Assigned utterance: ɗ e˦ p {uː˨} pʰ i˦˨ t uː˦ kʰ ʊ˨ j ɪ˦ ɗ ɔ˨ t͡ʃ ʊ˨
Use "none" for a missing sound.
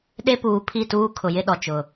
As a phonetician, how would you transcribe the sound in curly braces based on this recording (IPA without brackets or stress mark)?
uː˨